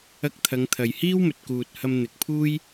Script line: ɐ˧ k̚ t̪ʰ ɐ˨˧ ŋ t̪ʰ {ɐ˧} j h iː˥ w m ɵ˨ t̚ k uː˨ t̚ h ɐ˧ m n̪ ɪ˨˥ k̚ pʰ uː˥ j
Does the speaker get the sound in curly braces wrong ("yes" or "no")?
yes